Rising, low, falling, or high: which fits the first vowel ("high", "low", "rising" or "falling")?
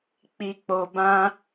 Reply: low